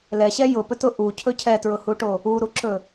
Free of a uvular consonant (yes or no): yes